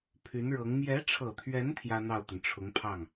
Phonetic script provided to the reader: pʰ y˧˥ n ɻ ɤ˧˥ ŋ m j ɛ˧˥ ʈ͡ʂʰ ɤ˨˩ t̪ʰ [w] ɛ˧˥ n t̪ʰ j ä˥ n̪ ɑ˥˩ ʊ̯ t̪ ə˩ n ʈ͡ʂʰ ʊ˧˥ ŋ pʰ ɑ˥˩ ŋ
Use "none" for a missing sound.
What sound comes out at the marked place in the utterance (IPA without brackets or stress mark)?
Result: ɥ